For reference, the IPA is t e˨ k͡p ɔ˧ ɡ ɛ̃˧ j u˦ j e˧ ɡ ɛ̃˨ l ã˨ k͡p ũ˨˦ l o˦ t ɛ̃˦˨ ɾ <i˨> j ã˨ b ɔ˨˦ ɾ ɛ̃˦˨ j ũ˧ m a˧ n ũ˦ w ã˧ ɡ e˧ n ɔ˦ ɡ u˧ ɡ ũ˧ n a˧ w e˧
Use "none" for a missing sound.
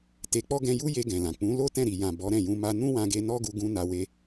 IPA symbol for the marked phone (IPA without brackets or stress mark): i˨